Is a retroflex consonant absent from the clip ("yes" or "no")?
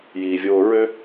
yes